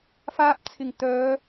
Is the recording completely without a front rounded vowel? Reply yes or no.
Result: no